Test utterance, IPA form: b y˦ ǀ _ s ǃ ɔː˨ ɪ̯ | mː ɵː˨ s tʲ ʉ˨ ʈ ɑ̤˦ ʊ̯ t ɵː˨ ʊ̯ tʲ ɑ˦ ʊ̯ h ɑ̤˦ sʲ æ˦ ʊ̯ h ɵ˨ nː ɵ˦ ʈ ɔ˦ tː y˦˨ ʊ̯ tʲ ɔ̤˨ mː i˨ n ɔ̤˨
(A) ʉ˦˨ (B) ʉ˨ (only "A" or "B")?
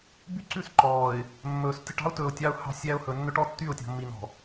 A